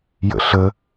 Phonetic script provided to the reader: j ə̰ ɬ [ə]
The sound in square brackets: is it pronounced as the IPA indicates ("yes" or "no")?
yes